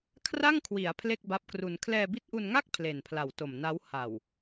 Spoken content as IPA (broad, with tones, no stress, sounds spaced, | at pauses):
kʰ r a˥˩ ŋ kʰ w i˩˦ a̯ pʰ l e˥˩ k̚ b a˦˥ p̚ k r u˧ n kʰ l ɛː˧ b i˦˥ t̚ ʔ u˧ n ŋ a˥˩ k̚ pʰ l e˨˩ n pʰ l a˨˩ w t o˨˩ m n a˦˥ w h a˨˩ w